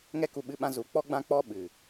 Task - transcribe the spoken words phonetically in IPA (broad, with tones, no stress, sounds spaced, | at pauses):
ŋ ɛ˦ k u˧ ɓ ɨ˧ ɓ ã˧ z u˨˦ k͡p ɔ˦ ɡ͡b ã˦ k͡p ɔ˧ ɓ ɨ˨